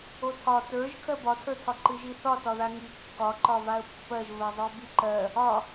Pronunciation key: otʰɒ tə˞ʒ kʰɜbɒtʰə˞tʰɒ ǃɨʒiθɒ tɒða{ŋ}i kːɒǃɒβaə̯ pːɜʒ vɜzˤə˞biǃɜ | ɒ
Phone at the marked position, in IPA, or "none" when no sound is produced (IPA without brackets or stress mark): ŋ